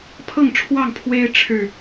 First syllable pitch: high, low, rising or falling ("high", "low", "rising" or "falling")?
falling